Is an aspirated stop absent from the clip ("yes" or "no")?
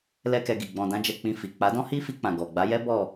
yes